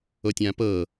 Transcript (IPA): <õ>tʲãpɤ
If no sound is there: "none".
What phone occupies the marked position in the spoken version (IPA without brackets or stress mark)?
o